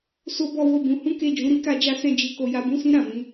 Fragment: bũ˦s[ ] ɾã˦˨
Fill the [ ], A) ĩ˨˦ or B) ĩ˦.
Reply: B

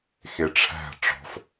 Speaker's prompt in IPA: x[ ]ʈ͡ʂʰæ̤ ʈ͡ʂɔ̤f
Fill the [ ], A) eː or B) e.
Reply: B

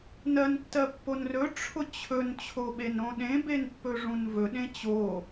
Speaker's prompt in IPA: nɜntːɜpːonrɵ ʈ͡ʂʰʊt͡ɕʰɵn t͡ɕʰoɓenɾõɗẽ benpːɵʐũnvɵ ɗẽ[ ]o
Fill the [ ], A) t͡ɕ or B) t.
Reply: A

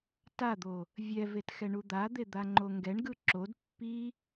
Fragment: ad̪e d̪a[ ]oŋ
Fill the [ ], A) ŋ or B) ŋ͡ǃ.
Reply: B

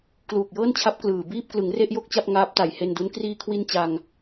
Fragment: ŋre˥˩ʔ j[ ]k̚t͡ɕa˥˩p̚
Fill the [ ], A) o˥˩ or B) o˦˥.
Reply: A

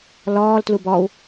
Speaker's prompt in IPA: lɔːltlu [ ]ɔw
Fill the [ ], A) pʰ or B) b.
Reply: B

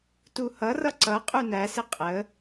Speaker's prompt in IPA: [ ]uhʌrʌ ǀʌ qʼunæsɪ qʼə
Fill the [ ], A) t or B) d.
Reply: A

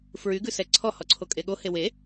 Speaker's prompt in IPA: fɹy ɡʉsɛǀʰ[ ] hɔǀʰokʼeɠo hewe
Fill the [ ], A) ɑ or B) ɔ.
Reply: B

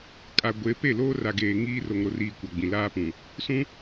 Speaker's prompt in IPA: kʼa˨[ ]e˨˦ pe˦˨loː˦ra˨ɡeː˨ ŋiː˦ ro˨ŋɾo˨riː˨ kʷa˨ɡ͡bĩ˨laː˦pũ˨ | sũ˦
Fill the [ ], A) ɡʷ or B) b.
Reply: A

